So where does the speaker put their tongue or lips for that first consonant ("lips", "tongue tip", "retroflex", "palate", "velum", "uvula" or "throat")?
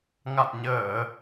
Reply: velum